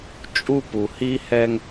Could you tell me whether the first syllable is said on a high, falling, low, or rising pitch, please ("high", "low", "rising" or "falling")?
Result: high